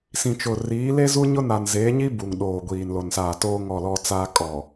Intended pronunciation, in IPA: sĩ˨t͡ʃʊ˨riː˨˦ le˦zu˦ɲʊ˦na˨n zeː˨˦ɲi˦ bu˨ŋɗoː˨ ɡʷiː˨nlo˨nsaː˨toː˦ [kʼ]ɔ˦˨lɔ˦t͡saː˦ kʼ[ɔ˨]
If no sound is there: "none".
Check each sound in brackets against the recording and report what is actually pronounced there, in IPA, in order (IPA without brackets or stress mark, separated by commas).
ŋ, ɔ˨